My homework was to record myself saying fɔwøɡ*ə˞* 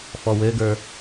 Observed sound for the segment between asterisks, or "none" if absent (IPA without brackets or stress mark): ə˞